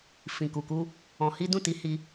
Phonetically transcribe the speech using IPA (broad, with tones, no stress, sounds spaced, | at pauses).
f ĩ˨ k u˨ k u˧ | ɔ̃˧ h i˦ d ũ˦˨ t i˨˦ h i˧